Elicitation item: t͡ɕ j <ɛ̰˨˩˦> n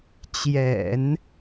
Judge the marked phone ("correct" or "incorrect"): correct